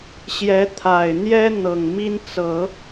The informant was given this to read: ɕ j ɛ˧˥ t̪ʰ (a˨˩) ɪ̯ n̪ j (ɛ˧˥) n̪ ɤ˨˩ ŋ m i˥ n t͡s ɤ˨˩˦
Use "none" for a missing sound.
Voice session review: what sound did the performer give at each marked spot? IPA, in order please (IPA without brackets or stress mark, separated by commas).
a˨˩, ɛ˥